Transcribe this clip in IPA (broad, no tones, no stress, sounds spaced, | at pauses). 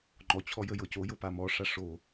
ŋ͡ǃ ɔ t͡ɕʰ ɔ j ə j ɤ c o j ɤ p a m ɔ ʂ a ʂ o